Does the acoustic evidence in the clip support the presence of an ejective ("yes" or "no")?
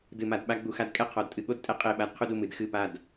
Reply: yes